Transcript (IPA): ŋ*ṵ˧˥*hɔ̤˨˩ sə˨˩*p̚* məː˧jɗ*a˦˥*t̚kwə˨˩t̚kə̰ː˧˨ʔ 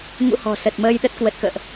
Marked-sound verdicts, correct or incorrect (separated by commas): correct, incorrect, incorrect